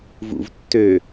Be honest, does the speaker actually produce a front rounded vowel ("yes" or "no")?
yes